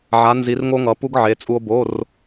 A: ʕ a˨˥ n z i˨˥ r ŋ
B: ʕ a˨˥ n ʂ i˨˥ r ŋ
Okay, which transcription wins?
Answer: A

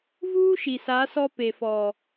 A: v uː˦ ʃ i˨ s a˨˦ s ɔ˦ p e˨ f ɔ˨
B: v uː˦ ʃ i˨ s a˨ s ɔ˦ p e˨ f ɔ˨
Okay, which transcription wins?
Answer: A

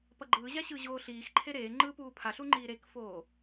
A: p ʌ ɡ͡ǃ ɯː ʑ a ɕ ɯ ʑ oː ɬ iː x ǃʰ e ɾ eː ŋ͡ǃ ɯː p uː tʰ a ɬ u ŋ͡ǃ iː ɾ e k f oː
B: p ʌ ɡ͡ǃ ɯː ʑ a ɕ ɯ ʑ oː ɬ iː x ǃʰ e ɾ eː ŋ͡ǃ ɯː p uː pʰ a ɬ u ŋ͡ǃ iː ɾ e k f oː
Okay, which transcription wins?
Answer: B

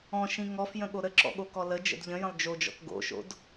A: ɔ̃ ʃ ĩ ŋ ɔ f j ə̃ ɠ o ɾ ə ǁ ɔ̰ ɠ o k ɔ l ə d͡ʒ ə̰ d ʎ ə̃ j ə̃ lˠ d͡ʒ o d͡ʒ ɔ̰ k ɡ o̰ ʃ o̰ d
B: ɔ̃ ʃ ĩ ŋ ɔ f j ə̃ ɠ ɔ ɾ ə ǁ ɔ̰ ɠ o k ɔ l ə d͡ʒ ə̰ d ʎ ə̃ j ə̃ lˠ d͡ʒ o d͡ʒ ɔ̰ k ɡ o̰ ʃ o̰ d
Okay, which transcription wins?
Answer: A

